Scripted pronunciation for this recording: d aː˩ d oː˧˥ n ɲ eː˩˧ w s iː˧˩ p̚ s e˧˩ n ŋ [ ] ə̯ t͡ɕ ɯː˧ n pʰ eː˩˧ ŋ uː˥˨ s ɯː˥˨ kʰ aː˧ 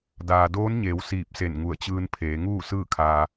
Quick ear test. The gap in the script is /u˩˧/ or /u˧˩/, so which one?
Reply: u˧˩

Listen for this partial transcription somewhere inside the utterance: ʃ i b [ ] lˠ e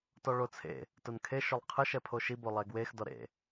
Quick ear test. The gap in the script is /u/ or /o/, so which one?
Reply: o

